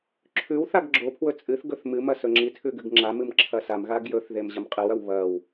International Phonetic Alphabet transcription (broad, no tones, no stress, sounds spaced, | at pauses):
ǁʰ ʉ w θ a ɡ ɡ͡ǁ o pʰ w ɵ t͡sʼ ɨ θ ɡ ɵ θ m ɨ m ɐ s ɵ ŋ͡ǁ i tʰ ʉ ɡ ɨ ɡ ŋ͡ǁ a m ɨ m ǁʰ ɐ s a m ɣ a ɡ j ɵ θ ð e m ʑ ɐ m qʼ ɨ w ɐ w β ɐ w